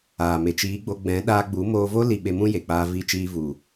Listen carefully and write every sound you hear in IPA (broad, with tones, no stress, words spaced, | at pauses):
aː˨me˨t͡ʃiː˨˦ɡ͡bo˧ ɡ͡bɛ̃˨˦ɗaː˧ɡ͡bu˨˦ moː˧vo˦ li˨ ɓe˧mũ˦je˨k͡paː˧ vi˧t͡ʃiː˧vu˨